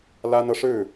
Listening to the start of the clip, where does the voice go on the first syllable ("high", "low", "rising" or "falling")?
high